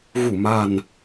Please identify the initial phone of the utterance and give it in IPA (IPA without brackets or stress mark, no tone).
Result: ɣ